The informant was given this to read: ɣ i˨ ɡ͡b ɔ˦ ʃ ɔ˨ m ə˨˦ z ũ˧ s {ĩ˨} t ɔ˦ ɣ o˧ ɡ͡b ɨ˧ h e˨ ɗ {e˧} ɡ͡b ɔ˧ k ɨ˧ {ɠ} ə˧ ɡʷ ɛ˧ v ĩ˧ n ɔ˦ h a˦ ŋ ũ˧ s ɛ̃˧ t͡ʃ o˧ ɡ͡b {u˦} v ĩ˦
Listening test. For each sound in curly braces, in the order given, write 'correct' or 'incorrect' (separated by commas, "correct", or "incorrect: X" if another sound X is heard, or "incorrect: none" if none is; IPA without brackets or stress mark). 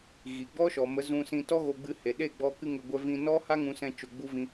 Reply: incorrect: ĩ˧, incorrect: e˦˨, incorrect: ŋ, correct